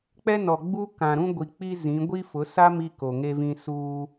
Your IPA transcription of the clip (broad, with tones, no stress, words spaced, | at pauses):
k͡pɛ˦nɔ˨ɡ͡bu˦ kã˨ɾũ˦ɡʷi˨ k͡pi˦zĩ˨˦ ɡʷi˦fʊ˨˦ sa˦ mi˦ko˨ŋe˦vĩ˦ suː˦